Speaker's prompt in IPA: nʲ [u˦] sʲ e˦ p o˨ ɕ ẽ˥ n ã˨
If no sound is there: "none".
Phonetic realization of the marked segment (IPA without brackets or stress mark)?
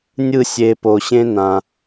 ɯ˦